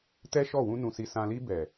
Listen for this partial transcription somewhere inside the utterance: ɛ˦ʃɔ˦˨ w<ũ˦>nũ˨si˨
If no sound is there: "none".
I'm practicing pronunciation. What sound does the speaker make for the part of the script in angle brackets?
ũ˧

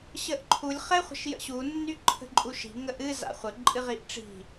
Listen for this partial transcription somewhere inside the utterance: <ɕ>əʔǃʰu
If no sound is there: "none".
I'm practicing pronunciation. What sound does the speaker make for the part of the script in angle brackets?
ɕ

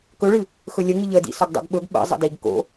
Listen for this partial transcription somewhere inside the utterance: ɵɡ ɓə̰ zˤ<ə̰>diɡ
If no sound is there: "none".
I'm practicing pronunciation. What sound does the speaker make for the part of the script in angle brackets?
ə̰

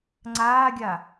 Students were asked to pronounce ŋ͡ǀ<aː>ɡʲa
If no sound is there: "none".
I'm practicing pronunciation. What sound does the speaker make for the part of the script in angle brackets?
aː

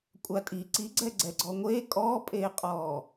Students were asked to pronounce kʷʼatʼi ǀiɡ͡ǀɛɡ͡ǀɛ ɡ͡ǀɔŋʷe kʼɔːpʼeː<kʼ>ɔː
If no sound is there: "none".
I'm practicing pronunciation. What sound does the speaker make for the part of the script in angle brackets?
qʼ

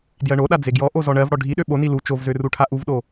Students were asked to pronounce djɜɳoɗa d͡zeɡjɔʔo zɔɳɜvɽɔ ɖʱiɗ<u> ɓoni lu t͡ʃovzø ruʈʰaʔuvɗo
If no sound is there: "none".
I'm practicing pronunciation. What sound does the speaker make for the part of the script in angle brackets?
ø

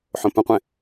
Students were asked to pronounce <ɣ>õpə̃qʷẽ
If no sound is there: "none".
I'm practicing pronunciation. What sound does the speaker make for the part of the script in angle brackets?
ħ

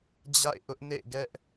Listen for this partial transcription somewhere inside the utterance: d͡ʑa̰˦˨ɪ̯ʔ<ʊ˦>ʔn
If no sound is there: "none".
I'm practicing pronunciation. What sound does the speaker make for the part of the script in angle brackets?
ʊ˦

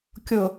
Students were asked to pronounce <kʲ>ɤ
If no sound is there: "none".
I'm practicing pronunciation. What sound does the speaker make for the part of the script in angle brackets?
kʲ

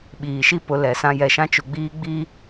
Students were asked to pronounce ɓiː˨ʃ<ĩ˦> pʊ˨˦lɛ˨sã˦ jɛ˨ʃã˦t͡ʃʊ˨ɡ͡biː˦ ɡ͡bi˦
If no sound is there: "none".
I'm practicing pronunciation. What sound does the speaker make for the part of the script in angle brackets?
i˦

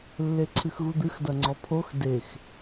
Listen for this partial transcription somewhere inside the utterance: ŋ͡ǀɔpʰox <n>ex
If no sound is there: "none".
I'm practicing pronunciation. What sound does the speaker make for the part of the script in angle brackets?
d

